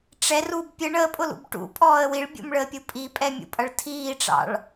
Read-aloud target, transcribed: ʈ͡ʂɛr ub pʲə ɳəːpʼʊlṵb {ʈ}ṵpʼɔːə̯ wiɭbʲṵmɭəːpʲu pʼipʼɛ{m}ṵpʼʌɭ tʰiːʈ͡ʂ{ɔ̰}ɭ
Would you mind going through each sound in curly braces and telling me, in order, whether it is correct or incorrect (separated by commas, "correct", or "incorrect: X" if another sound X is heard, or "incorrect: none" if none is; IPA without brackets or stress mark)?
correct, incorrect: mʲ, incorrect: ɑ̰